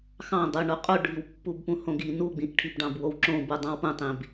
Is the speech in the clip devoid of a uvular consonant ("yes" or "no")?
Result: no